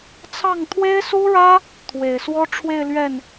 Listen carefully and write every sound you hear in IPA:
t͡sʰ ɑ˥˩ ŋ t̪ʰ w e˥ ɪ̯ s u˥ ɻ ä˥ | t̪ʰ w e˨˩ ɪ̯ s w ɔ˥ ʈ͡ʂʰ w e˥˧ ɪ̯ l ɥ ɛ˥˩ n

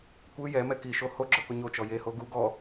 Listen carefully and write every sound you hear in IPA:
kʷ ɯ j ɛ m ɛ k i ʃ o h o ɡ͡ǁ ɤ k o ɲ o t͡ʃ ɔ j e h o ɡ u ɡ ɔ

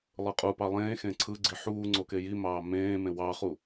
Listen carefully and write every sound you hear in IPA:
lˠ ɯ qʼ u p ɑ lˠ ẽː x ẽː ǀʰ ɯ ɡ͡ǀ i ħ uː ŋ͡ǀ o k e j i m ɑː m ẽː m ẽ w ɑ χ u

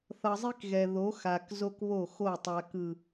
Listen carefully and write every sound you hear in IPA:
θ ʌ˨ zˤ i˦ k ɣ ɛ˨ ð o˨˦ x a˨ k z o˦ k β o˦˨ x o˦˨ tˤ a˨ k ɯ˨

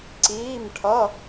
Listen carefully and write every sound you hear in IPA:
ǀ iː˩˧˩ m ʈʰ ʌ˩˧˩

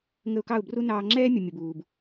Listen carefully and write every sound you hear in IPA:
ŋ ə˧ ʊ̯ k ɑ˦˨ ʊ̯ b r u˦ n ɑː˧ ŋ͡ǁ ɛː˦ mʲ ʌ˨ mʲ ʊ˨ b uː˨ b

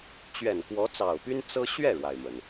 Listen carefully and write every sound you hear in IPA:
t͡ɕ ɥ ɛ˨˩ n k w ɔ˧˥ t͡s ɑ˨˩ ʊ̯ p y˥ n t͡s ɤ˥ ɕ ɥ ɛ˥˩ ɻ w a˩ ɪ̯ m ə˩ n

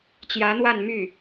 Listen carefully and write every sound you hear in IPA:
t͡ɕ j ä˧˥ n̪ w a˥˧ n m y˥˩

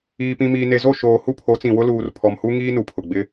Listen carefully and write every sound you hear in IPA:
iː˨ p ĩ˨ m iː˨ n e˨ z o˦˨ ʃ oː˨ h u˦˨ pʰ o˨˦ t͡s ĩ˨ w ʊ˦ l uː˨ r pʰ ɔ˨ m h u˦ ŋ iː˦ n u˨ pʰ ʊ˨ ɡ͡b ɪ˦

